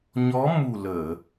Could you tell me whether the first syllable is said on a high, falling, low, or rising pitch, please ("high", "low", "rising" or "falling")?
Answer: rising